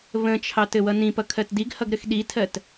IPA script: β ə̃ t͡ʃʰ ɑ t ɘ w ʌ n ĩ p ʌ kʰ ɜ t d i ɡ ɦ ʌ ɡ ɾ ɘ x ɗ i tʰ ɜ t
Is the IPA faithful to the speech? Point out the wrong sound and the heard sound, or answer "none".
ɦ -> h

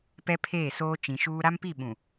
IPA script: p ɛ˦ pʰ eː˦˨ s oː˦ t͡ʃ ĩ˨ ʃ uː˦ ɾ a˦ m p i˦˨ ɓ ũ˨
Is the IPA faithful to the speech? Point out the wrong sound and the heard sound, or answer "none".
none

